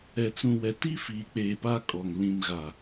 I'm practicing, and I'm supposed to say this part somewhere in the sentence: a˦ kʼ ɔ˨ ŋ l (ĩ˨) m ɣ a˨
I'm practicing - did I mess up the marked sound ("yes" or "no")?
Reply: no